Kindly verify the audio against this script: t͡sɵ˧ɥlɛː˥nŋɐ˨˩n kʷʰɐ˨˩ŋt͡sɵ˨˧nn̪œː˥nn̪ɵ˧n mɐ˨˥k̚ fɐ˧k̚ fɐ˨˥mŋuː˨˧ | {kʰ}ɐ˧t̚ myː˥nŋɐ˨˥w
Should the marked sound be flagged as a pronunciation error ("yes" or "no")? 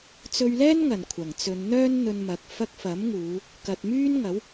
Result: yes